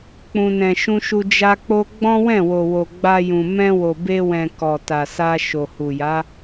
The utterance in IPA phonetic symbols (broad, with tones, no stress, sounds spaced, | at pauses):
k͡p ũ˨ n ɛ̃˨ ʃ ũ˧ ʃ u˧ d͡ʒ a˧ k͡p o˦ ɡ͡b ɔ̃˦ w ɛ̃˦˨ w o˨ w o˨ ɡ͡b a˧ j ũ˨ m ɛ̃˧ w o˨ b e˧ w ɛ̃˨ k ɔ˨ t a˨ s a˧ ʃ o˨ h u˨ j a˨˦